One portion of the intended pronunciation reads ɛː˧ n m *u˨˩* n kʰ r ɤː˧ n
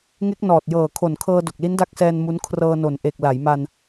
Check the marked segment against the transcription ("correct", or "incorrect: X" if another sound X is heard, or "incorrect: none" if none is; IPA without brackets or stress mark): incorrect: u˦˥